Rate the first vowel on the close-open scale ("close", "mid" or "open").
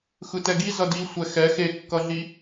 close